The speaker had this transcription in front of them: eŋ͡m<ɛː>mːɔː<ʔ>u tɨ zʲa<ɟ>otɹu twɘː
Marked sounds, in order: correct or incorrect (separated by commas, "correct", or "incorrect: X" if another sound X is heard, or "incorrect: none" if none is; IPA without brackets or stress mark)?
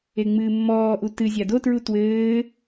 incorrect: ɨː, correct, incorrect: d